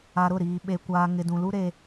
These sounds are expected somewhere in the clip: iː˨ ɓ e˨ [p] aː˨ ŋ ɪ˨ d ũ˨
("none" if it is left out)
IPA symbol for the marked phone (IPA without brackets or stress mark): kʷ